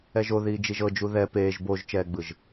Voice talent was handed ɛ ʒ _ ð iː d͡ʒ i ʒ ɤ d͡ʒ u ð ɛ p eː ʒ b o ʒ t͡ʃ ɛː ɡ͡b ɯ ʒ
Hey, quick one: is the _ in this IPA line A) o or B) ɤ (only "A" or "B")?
A